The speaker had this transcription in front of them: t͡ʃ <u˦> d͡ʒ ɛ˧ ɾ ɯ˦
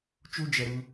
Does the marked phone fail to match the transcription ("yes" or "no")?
no